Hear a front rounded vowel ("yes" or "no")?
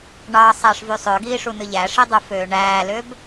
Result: yes